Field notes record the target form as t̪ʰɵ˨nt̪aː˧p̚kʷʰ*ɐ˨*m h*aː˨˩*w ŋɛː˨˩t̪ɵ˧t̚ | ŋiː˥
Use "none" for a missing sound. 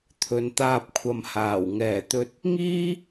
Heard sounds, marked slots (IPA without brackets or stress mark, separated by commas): ɐ˨, aː˨˩